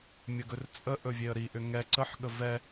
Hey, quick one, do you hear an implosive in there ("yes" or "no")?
yes